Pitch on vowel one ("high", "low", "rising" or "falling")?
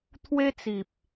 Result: high